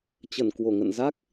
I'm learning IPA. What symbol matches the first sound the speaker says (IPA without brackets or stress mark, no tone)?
t͡ɕ